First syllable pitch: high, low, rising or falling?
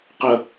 high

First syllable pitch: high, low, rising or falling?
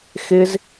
high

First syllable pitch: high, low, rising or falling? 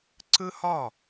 high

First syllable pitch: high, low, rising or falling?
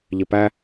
low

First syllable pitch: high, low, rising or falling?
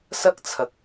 high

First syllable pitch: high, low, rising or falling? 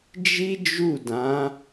high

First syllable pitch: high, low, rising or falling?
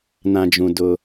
low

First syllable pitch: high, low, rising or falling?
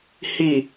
low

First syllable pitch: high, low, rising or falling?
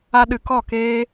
high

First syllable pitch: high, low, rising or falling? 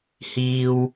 high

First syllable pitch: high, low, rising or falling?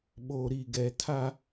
low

